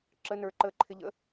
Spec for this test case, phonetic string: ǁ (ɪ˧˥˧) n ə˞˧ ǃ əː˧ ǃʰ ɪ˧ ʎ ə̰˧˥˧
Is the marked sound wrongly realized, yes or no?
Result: yes